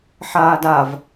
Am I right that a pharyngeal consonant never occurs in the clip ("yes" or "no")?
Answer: no